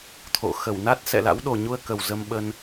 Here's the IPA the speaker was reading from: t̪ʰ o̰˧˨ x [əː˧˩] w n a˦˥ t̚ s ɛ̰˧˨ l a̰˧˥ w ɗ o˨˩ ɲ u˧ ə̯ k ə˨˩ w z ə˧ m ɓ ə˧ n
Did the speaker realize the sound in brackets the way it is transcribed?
no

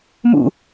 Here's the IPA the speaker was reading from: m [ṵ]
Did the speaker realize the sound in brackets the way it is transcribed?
yes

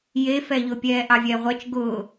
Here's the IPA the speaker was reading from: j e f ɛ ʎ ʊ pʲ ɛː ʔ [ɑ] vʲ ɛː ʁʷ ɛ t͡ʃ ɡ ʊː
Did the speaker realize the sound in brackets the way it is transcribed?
yes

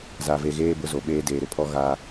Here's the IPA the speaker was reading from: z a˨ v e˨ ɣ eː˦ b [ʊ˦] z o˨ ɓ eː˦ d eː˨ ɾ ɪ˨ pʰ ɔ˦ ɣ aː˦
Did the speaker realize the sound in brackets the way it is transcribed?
yes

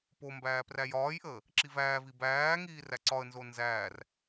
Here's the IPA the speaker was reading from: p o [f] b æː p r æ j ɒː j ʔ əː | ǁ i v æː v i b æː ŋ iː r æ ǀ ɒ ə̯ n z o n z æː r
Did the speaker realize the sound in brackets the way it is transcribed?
no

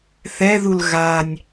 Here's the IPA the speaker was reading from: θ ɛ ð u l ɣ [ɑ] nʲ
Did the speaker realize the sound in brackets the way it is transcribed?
no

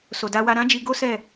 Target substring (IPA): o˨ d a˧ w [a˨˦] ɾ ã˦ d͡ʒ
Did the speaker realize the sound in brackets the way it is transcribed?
no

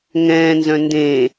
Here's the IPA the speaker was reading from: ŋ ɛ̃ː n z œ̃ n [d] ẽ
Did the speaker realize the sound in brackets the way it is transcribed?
yes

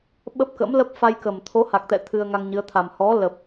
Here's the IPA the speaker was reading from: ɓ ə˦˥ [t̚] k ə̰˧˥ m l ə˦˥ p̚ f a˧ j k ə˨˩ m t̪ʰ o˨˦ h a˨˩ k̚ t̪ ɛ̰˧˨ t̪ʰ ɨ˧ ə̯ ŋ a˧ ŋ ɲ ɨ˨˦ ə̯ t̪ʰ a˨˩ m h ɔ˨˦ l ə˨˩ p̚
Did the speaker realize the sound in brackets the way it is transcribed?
no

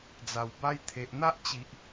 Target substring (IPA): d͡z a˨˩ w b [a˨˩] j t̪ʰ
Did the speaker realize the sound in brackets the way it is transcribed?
no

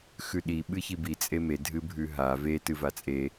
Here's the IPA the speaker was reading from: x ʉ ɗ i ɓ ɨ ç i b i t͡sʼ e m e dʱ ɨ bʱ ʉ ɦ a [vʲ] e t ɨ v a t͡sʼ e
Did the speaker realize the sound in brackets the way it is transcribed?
no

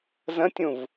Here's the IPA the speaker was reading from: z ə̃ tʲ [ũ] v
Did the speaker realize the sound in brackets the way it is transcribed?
yes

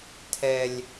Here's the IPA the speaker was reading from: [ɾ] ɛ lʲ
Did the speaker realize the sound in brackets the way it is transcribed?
no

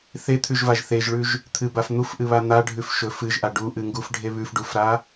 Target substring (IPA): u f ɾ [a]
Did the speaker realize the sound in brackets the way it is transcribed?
yes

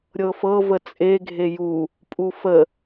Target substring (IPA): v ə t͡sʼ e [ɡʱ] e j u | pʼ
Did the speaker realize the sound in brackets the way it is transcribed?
yes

